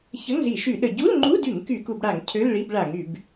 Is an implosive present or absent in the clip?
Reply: present